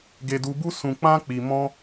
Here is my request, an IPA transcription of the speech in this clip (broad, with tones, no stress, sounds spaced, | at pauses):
ɡ e˧ d u˧ b u˦ s ũ˧ k͡p ã˦ k͡p i˧ m ɔ̃˦